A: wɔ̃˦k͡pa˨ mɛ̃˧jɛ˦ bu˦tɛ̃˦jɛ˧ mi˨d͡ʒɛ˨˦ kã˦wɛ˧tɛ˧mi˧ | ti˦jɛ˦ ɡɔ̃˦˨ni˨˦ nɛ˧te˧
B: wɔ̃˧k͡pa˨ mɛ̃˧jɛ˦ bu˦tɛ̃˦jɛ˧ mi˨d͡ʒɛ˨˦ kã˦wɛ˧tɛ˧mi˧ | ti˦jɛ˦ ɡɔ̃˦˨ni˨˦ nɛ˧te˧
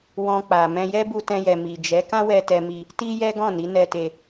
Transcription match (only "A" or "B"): B